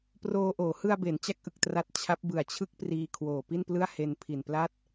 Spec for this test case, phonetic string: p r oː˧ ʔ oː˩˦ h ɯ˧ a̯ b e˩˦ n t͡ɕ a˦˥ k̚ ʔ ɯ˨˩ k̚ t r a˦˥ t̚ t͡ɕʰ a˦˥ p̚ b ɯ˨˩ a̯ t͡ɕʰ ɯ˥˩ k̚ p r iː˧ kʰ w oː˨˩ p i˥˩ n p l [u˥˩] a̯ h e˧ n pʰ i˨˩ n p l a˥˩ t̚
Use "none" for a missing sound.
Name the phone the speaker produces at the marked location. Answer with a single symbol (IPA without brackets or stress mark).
ɯ˥˩